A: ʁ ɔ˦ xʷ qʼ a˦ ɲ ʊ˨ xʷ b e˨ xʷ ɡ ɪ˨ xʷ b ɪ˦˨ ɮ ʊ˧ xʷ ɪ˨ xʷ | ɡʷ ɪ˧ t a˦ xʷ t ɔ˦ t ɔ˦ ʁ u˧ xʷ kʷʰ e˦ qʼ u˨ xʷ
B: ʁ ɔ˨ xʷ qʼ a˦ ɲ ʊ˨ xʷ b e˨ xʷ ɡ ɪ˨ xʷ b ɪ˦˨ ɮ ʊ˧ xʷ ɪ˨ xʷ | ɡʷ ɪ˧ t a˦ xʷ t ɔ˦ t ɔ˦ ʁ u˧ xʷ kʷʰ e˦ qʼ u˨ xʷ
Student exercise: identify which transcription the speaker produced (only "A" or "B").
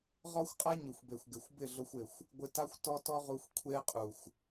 A